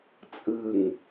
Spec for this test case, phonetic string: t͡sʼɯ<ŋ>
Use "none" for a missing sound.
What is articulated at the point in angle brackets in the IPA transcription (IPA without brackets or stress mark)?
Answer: ŋ